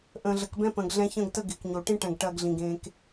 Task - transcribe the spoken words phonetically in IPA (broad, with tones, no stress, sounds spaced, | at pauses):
ʔ ə̃ː˨ ɮ ə˨ k b ɛ̃˦ p ə̃ː˨ ɡ ɮ ɛ̃˦ ç ə̃ː˦ ɡ t ə˦ ɡ ɪː˨ k ɲ o˨ ʈ ĩ˦ ʈ ɛ̃˨ ɡ ʈ ɐː˦ ɡ ɮ ĩ˨ ɡ ẽː˦ k